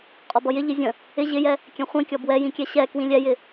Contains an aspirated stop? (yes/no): no